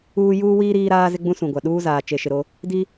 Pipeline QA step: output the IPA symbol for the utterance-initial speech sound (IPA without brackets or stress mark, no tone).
uː